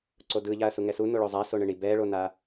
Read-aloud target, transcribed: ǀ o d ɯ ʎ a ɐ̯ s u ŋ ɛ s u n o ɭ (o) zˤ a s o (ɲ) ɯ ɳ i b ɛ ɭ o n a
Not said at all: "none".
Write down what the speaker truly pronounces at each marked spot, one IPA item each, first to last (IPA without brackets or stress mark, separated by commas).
o, ɳ